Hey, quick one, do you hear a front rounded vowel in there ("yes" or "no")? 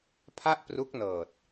no